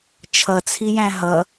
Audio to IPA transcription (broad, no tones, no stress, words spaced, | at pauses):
t͡ʃʰʌt͡sʰijæ̃ ɦʌ